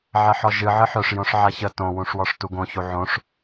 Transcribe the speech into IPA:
ʕ ɛ ħ ɔ ʒ ɨ ʕ ɨ ħ œ ʂ j õ ʂ ʕ a ç ə t õ w ũ ʂ w ɔ ʂ t u ɡ õ ç u ʕ õ ʂ

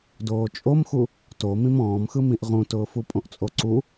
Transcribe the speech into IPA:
d oː t͡ʃʼ o m x u | t o m ĩ m ɔ̃ː m x ɯ m ĩ ʔ ʁ ũ t ʊː f u pʼ õ ʔ t͡sʼ o ǀ u

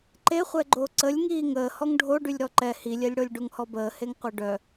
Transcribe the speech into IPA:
ǃ e χʷ ɛ ɡ͡ǃ o ǀ ə lʲ ŋ iː ŋ əː h ɔ ŋ ɖʱ o ɖ y lʲ ɾ ɔ ǃ ɛ h i lʲ ɛ lʲ ɽ o lʲ ɖ u ŋ h ɔ b əː h e ŋ qʷ œ ɖ œ

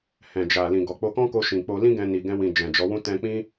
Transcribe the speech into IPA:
h ɛ̃˨ d͡ʒ a˨ l ĩ˨ ɡ ɔ˨ k͡p o˧ k ɔ̃˦ k o˧ ʃ ĩ˨ k͡p o˧ l ĩ˦ ɡ ɛ̃˧ n i˨ ɡ ɛ̃˧ w ĩ˨ d͡ʒ ɛ̃˨ d͡ʒ ɔ˨˦ w ũ˦ t ɛ̃˧ k͡p ĩ˦

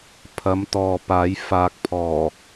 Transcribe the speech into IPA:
pʰ ɐ˨˧ m t̪ ɔː˨ p aː˨˥ j f aː˨ k̚ pʰ ɔː˨˩

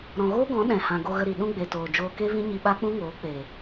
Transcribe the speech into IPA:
ɾ ɔ̃˨ ɣ oː˦ ɡ ɔ̃˨˦ ɗ ɛ̃˨ h ã˨ ɡ o˧ ɣ ə˧ ɾ i˨ ɗ ũ˦ ɡ͡b e˨ t oː˨ d͡ʒ oː˧ k e˦ v ĩ˦ ɲ i˧ ɓ a˦ k͡p ũ˦ ŋ oː˨˦ k͡p e˨

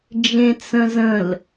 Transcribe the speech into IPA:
d͡ʒ ẽ t͡s ə̃ z ə̃ l

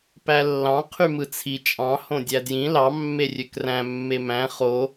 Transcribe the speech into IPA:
p æ lː ɑ̃ qʰ y m ɯ t͡sʰ i t͡ʃʼ ɑ̃ h õ dʲ æ d j ĩ l ɑ mː e rʲ ø k r æ̃ mː e m æ̃ χ o

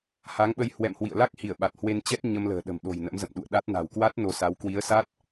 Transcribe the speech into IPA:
h aː˨˦ ŋ ɓ ə˧ j h w ɛ̰˧˨ m h w ḭ˧˨ ə̯ l a˦˥ k̚ h i˧˩ ə̯ ɓ a˨˩ t̚ h w e˧ n t͡ɕ ɛ˦˥ t̚ ɲ ə˧ m l ə̤ː˨˩ ɗ ə̤˨˩ m ɗ o̤˨˩ j n ə̰˧˥ m z ə̰˧˨ m ɗ ṵ˧˨ ə̯ ɗ a˦˥ t̚ n a̤˨˩ w k w a˦˥ t̚ n o˧ s a˨˦ w k w i˨˦ ə̯ s a˦˥ t̚

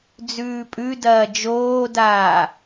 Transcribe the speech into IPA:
d͡z ʉː pʼ ʉ d ɐː d͡ʒ oː d aː

